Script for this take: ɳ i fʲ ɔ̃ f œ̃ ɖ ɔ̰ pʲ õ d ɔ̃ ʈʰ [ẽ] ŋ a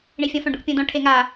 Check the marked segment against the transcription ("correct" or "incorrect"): incorrect